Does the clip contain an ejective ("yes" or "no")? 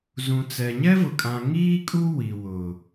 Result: yes